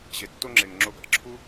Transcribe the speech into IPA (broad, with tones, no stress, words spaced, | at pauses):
ʑe˨tːo˧ŋ͡ǁe˨ŋ ŋ͡ǁo˧ɡɑ̰˧ ǁʰu˦